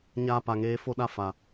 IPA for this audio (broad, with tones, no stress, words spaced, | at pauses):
ɲaː˧pa˨ŋeː˨˦ fo˧ɗa˧ fa˨